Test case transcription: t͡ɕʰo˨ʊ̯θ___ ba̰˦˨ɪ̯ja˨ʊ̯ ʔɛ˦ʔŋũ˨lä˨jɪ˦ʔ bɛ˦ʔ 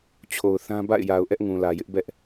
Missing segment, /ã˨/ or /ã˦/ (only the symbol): ã˦